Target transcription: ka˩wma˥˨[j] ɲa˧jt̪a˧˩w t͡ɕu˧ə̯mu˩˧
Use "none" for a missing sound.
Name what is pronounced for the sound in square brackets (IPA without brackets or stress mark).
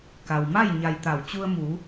j